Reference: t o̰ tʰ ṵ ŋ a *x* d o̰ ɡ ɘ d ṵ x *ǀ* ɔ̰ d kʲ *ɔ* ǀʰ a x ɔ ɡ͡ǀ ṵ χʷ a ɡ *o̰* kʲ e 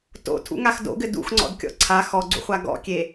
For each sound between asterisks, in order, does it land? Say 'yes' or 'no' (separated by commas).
yes, no, no, no